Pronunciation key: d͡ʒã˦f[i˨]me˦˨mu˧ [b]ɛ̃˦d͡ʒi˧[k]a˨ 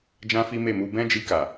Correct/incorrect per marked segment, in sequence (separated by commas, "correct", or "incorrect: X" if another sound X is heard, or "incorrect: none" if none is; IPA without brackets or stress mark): incorrect: i˦, correct, correct